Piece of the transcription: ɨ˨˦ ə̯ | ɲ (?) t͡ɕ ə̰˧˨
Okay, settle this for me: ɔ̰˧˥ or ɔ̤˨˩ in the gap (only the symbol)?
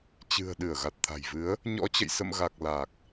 ɔ̰˧˥